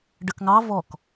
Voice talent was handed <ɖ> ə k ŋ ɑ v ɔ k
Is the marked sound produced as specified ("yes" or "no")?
yes